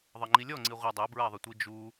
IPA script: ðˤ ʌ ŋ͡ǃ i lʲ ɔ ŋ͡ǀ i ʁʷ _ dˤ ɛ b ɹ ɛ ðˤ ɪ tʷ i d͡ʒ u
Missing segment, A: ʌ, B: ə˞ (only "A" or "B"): A